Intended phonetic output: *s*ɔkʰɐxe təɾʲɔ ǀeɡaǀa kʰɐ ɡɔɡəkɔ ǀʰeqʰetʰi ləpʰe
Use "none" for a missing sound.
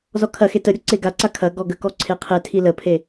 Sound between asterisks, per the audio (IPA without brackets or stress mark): z